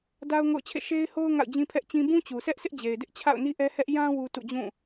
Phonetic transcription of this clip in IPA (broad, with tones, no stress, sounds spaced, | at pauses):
d a˦ ʊ̯ ŋ o̰˦˨ ʊ̯ t͡ɕʰ ḛ˦˨ ʃ e˦ ɪ̯ h o˦ ʊ̯ ŋ a̰˦˨ ʊ̯ d͡ʑ ĩ˦ pʰ ɛ˦ ʔ t͡ɕ ĩ˦ b ũ˦ t͡ɕ u˨ sʰ ɛ˦ ʔ sʰ ɪ˦ ʔ d͡ʑ e˨ ɪ̯ d ɪ˦ ʔ t͡ɕʰ a̰˦˨ ʊ̯ n i˦ ʔ ɛ˦ h ɛ˦ ʔ j ã˦ w u˦ t ṵ˦˨ d͡ʑ ũ˦˨